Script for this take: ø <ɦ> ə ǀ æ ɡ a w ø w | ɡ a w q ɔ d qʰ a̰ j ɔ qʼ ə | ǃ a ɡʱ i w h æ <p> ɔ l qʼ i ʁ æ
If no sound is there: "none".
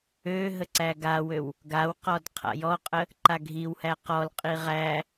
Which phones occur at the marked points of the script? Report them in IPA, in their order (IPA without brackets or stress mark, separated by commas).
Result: ɦ, q